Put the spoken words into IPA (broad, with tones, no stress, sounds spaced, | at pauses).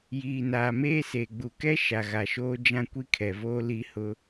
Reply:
j iː˨ n aː˨ m eː˦ s e˨ ɡ͡b u˨ k ɛ˦ ʃ a˨ ɣ a˨ ʃ oː˦ d͡ʒ ã˦ kʷ i˦ kʰ ɛ˨ v oː˦ l i˦ h ʊ˦